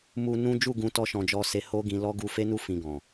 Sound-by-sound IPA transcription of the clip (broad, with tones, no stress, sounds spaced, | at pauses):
m u˦ n ũ˦ d͡ʒ u˦˨ ɡ ũ˧ t ɔ˦ ʃ ɔ̃˧ d͡ʒ ɔ˦ s e˦ h o˦ ɡ ĩ˧ l ɔ˦ ɡ u˧ f e˦ n u˦˨ f ĩ˧ ɡ ɔ̃˨